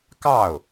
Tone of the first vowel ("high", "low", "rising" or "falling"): falling